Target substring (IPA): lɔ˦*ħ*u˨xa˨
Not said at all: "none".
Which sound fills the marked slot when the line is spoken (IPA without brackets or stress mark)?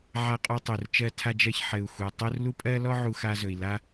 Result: ʕ